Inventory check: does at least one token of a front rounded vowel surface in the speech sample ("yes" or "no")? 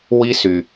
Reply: yes